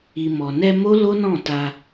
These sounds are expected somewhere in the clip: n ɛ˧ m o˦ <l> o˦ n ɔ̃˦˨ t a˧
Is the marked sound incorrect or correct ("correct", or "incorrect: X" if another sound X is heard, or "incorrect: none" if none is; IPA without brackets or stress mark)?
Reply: correct